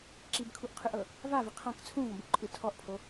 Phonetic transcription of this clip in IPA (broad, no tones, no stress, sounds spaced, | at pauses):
ǁ i b kʰ u ʔ qʰ ɯ ʔ ɤ | v a v i qʰ ã k t͡sʰ ũ v ɔ̃ b u ǃʼ ɯ tʰ ɔ ʔ pʰ o